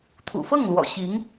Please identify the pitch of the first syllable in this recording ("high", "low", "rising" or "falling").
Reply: low